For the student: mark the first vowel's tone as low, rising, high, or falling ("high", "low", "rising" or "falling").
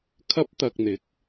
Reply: high